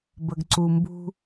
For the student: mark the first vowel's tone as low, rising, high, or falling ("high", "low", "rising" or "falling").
low